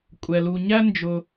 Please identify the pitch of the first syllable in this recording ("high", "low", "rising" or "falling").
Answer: low